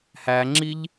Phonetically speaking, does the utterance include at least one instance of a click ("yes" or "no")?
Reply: yes